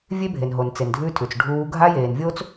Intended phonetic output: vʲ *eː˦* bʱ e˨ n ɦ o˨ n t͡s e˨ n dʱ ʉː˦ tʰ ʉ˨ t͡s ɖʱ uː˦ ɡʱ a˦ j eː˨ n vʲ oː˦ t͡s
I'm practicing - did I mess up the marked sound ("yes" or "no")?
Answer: yes